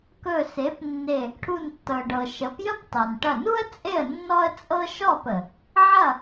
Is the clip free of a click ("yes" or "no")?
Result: yes